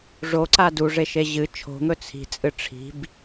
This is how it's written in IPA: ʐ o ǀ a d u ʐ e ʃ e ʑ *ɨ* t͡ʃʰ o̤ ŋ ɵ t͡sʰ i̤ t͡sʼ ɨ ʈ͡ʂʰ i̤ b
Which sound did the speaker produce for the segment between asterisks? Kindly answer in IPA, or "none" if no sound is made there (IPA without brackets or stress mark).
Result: ɨ